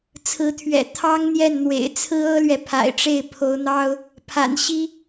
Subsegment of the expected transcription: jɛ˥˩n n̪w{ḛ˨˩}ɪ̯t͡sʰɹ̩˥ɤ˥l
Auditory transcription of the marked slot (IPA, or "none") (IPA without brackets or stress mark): ḛ˨˩